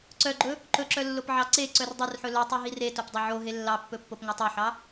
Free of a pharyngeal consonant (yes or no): no